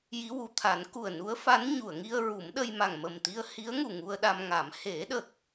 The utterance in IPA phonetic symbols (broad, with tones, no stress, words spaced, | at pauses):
ji˧˥wu˨˩˨ t̪ʰa˨˩˦nku˨˩ə̯nu˧˥ə̯fa˧˥n ɲu˨˩˨ə̯ŋi˧ə̯ ɹu˨˩˦mɗə˧jma˨˩ŋ mə˨˩mt̪i˧ə̯hi˧˥ə̯ŋu˨˩ ŋu˧ə̯ɗa˧mŋa˨˩˦m he˨˩˦ɗə˨˩k̚